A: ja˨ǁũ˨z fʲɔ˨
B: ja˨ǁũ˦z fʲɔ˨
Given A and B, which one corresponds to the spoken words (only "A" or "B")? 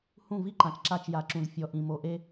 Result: A